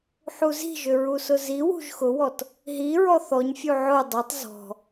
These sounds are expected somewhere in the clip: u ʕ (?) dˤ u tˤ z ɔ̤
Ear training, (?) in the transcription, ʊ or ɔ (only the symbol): ʊ